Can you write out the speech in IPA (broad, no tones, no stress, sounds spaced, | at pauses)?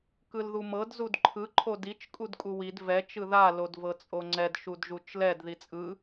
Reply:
k ɯ l ð u m ɤ d z u d ǃʰ ɯ ǃʰ o d i t͡ʃ kʼ u d kʼ u w i d v ɛ t͡ʃ ɯ ð a l o d v ɤ t͡sʼ o ŋ͡ǀ ɛ d ʃ u d ʒ u t͡ʃ l ɛ d ð i t͡sʼ ɯ